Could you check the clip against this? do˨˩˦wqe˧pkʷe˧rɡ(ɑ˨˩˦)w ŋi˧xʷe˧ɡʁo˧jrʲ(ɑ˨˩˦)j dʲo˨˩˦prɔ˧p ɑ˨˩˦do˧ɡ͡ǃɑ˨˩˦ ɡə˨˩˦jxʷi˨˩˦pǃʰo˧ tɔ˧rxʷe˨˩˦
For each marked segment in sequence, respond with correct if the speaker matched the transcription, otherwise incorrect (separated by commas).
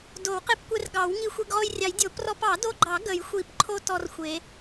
correct, correct